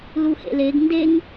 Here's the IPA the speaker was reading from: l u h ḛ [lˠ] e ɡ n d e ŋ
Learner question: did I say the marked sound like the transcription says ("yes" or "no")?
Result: no